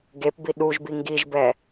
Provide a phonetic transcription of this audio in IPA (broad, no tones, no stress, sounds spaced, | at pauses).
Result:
ɡ e p b i ɗ u ʒ b i ŋ ɡ i ʒ b ɛ